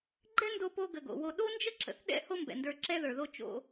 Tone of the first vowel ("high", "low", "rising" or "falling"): high